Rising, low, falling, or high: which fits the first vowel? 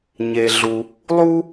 low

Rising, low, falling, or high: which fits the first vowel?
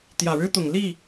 low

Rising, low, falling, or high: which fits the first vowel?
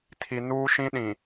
low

